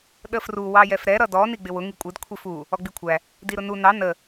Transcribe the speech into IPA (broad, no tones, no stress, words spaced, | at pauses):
ɗəfru wɑjɛfɾɛ ɾʌdɔ niɡ͡bɪwʊ ŋikʷʼɪd kʷʰifu | ɔɡ͡bikʷʰæ | diɾʊnu nɑ nə